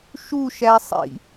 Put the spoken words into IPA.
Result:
ʃ u ʃ æ sˤ ḭ

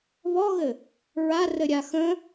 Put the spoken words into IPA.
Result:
β ɔ ɣ ɘ | ɹ a r ɘ ɾʲ a x ə̃

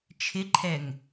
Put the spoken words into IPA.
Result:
t͡ʃʰ ɪ ǃʰ ɛ ŋ

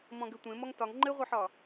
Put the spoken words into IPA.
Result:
m ɔ̃ ɡ ɘ tʷ ẽ m ɔ ŋ t ɒ ŋ ŋ͡ǃ ɘ ʁʷ ɘ ħ ɒ

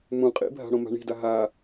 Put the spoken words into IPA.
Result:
m ũ qʼ ḭ bʱ a̤ ɽ õ m a̤ ɳ i̤ d a ɦ a

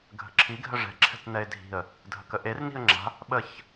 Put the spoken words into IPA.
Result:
ɡʱ ə̤ ǁʰ i ɡʱ ə ʐ ɛ̤ ǁʰ ɛ̤ t n ɛ ɪ̯ dʱ i̤ ə̯ | dʱ ə k ə ʔ e r n i̤ ə̯ ŋ͡ǁ a̤ | ɓ ə ç

